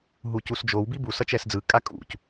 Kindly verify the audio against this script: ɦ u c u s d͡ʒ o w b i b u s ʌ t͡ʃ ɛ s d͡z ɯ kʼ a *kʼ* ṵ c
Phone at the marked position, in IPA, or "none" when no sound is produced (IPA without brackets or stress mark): kʼ